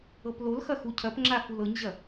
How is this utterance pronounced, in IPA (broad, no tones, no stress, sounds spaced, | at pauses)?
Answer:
ɤ p l o l x ɐ x u cʰ ɐ p ŋ͡ǁ a f u l ɤ ɲ ʑ ɐ